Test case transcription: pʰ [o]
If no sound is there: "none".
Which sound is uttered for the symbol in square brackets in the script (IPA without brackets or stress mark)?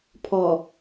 ɔ